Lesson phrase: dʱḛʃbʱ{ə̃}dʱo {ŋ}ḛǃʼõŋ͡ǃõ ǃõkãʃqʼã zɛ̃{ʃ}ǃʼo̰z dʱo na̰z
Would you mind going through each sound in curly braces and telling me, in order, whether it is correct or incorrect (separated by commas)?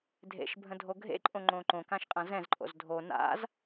correct, incorrect, incorrect